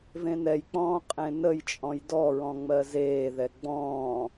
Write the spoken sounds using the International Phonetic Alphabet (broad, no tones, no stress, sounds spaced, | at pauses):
v ẽ n ɛ j k͡p ɔ̃ː qʼ ẽ n ə j t͡ʃʼ ɔ̃ j d ɔ ɹ ɔ̃ ŋ͡m ɜ z eː ð ɛ ɡ͡b ɔ̃ː